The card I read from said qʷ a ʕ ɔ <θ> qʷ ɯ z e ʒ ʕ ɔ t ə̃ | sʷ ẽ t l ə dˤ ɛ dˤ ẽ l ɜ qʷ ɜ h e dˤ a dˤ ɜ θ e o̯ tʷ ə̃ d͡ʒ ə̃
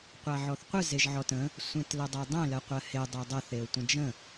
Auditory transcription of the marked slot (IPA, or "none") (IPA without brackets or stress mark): θ